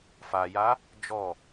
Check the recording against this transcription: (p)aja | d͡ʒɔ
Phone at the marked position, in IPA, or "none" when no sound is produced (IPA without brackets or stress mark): f